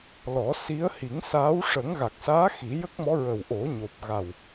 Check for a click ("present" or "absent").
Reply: absent